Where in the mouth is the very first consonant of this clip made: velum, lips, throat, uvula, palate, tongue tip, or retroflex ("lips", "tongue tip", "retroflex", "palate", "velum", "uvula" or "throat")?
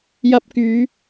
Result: palate